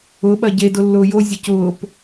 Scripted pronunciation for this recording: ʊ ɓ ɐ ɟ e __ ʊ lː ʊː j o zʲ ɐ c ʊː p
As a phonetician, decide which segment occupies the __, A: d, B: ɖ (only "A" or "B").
A